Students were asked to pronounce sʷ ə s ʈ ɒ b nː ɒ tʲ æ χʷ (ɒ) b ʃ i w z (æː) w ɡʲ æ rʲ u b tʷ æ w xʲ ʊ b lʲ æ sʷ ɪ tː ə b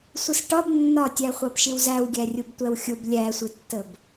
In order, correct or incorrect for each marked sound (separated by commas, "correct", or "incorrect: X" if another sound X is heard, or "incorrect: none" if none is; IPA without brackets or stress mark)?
incorrect: ɑ, incorrect: æ